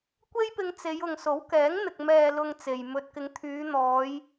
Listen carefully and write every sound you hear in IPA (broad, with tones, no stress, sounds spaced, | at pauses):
kʷ e˥ j p ɪ˧ ŋ t͡s e˨˧ j ʊ˨ ŋ s o˨˥ w k ɛː˨˥ ŋ n̪ ɪ˨ k̚ m ɛː˨ l ʊ˨ ŋ t͡s e˨ j m ɵ˧ t̚ k ɪ˨˧ ŋ t̪ʰ yː˨˧ n̪ ɔː˨˧ j